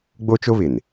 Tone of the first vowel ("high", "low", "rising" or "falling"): high